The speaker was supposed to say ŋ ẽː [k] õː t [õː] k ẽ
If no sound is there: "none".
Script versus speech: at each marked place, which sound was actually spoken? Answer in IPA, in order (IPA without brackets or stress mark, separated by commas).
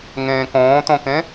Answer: k, õ